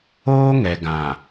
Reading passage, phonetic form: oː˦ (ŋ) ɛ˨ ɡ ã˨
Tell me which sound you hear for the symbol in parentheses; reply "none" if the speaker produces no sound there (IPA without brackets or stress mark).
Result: ŋ